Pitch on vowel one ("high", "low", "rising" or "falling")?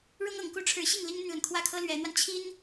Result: high